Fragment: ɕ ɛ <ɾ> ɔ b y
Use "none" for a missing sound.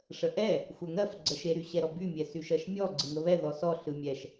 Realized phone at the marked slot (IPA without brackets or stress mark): ɾ